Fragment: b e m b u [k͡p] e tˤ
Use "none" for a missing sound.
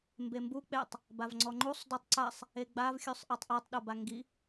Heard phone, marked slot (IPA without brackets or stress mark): k͡p